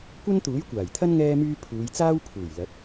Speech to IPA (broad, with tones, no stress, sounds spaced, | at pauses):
kʷ ɐ˥ n t̪ uː˨˥ j kʷ aː˨˩ j t̪ʰ ɐ˥ n ŋ ɛː˥ m yː˥ pʰ uː˨˧ j t͡s aː˥ w pʰ uː˨˩ j l ɐ˨˥ t̚